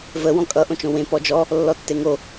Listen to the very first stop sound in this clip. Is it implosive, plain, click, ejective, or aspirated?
ejective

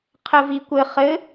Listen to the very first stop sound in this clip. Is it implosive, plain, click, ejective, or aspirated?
aspirated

